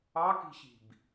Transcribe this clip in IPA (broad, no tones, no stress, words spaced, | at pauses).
ɑki̤ɕi̤b